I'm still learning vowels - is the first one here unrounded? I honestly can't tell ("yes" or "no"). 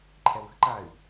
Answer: yes